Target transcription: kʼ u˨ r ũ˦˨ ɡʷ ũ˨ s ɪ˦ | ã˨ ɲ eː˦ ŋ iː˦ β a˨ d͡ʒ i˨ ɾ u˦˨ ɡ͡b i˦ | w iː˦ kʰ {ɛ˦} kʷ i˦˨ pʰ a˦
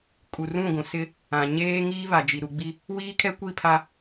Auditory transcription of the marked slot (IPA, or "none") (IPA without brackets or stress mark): ɛ˦